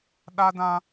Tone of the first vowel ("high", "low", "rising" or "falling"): high